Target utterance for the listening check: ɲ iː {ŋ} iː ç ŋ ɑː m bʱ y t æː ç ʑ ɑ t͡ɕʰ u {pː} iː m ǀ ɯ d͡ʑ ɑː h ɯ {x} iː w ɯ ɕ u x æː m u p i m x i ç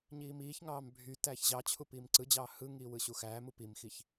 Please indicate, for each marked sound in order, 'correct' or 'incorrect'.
incorrect: m, incorrect: p, incorrect: ŋ

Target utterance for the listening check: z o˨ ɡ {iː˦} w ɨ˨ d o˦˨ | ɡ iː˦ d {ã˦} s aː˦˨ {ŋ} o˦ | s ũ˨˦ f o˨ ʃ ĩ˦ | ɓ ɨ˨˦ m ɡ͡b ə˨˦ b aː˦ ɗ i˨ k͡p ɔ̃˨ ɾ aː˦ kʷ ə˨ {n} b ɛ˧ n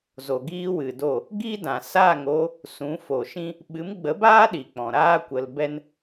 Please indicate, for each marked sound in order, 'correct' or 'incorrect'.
correct, incorrect: ã˨, correct, incorrect: l

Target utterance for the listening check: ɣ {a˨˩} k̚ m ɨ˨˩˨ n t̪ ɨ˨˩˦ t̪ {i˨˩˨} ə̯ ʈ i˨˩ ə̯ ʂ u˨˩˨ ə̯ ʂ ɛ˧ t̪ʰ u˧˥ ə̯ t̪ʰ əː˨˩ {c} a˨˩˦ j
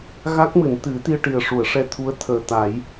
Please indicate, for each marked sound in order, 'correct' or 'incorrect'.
incorrect: a˦˥, incorrect: i˧, incorrect: t̪

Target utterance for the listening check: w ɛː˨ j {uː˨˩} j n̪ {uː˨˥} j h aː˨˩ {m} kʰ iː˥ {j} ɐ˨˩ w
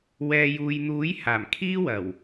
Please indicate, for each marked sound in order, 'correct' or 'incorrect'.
incorrect: uː˨, correct, correct, incorrect: w

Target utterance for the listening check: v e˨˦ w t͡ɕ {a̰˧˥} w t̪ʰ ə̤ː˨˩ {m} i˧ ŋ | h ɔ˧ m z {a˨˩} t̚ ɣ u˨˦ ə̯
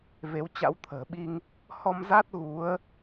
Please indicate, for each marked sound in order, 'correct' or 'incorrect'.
correct, incorrect: ɓ, incorrect: a˦˥

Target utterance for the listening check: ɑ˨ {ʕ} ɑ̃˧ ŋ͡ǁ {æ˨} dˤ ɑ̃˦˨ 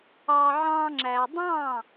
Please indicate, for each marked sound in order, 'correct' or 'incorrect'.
correct, correct

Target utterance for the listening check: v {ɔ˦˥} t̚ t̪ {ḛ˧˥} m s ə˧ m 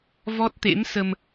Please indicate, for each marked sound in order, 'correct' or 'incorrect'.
correct, correct

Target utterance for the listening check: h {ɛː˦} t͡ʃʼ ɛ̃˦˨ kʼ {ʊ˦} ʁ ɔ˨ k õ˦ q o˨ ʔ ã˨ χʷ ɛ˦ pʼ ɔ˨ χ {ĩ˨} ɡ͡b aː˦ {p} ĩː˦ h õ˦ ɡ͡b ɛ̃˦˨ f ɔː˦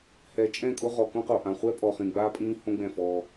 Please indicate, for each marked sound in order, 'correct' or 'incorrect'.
incorrect: ɛː˨, correct, correct, incorrect: pʼ

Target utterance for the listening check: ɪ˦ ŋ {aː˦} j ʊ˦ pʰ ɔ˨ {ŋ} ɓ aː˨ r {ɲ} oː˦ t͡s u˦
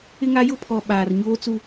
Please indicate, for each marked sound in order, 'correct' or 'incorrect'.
incorrect: a˦, incorrect: none, correct

